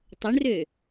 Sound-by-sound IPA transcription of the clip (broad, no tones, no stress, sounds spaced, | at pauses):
tˤ ʊ ɳ r ø